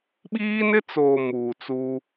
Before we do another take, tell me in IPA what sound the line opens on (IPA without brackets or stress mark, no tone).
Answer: ɓ